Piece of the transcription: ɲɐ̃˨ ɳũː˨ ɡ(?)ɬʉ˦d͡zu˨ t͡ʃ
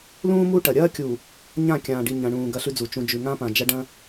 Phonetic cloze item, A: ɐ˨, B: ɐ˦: B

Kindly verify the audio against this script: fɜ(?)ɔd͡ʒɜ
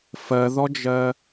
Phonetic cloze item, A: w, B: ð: B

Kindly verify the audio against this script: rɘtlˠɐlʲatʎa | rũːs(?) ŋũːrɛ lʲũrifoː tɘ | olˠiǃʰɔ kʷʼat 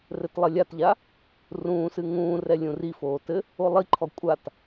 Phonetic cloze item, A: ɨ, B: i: A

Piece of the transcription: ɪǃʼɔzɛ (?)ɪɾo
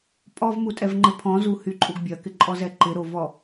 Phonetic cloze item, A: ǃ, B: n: A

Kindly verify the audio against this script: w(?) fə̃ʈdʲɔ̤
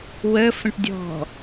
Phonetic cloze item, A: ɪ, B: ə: B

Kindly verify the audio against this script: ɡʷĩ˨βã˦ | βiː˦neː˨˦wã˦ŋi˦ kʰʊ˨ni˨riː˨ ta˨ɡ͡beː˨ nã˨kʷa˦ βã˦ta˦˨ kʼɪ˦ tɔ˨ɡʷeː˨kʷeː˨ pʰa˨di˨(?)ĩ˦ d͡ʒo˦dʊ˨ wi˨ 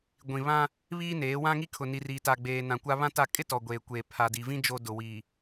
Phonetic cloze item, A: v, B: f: A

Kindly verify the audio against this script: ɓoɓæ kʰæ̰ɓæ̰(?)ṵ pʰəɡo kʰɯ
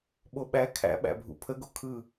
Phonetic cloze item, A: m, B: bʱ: B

